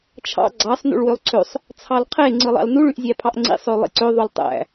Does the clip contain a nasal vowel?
no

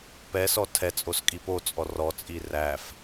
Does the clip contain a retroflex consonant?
no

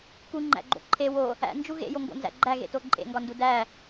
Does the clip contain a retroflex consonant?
no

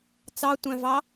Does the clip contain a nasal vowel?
yes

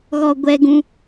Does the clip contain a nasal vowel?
yes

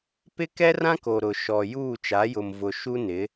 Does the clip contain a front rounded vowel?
no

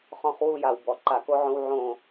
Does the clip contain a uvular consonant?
yes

